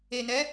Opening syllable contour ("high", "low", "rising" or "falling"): low